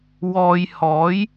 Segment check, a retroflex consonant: absent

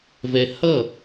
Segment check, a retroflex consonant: absent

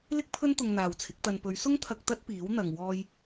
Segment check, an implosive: absent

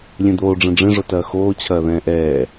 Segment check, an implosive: absent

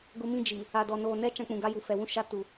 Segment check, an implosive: absent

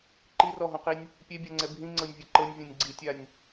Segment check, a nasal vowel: present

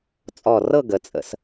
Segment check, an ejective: present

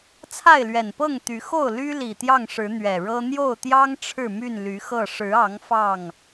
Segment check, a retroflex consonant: present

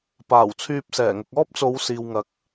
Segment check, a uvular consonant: absent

